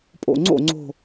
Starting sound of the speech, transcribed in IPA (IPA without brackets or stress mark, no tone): pʼ